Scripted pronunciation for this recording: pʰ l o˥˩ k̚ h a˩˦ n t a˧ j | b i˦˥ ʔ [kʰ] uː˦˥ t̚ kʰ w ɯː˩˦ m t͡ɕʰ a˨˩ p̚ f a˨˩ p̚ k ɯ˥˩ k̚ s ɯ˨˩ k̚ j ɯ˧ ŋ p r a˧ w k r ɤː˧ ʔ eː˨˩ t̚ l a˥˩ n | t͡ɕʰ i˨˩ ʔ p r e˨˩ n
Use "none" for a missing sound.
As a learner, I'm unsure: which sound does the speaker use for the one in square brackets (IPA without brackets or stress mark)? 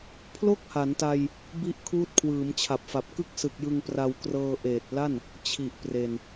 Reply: kʰ